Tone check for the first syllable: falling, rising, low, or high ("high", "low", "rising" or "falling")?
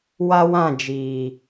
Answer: high